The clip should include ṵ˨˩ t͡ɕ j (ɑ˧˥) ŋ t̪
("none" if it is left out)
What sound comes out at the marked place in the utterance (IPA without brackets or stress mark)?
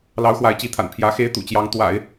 ɑ˧˥